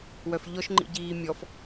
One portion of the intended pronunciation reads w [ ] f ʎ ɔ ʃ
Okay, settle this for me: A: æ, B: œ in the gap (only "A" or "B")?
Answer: B